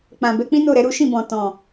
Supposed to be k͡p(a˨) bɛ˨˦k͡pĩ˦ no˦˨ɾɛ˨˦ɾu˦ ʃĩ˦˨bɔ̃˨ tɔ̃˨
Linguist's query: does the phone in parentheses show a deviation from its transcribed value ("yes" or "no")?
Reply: yes